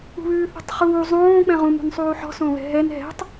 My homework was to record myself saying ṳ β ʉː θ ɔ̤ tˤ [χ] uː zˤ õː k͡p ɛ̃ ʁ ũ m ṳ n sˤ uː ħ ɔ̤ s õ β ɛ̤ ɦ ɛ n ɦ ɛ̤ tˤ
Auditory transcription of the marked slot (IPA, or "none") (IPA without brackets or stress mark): χ